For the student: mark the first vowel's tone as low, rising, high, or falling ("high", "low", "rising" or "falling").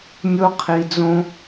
high